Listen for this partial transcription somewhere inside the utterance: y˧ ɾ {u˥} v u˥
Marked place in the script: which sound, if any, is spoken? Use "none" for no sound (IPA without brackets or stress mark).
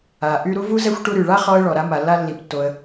u˥